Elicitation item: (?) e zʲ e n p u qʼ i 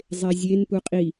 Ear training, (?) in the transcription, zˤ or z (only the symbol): zˤ